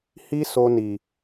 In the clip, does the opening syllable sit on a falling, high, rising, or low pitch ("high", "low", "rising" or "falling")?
high